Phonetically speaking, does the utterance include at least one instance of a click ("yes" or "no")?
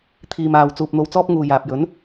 no